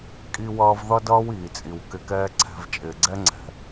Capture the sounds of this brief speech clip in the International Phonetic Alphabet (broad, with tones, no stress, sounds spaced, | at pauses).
kʼ i˧ w ʌː˧ v ð ʌ˦ d ʌː˦ w iː˨ t͡sʼ i˨ w k ɪ˧ k ɛː˦ ǀʰ ɛ̤˧ v t͡ʃʼ ɪː˨ ɡ͡ǀ ɛ˦ ŋ͡ǀ ɛ̤˨